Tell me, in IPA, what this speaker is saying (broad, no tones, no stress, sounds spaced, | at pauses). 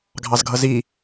ɡʱ ɑ z ɡʱ ʌ z i